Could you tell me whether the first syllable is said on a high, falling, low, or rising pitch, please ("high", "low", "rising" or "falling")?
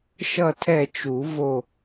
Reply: falling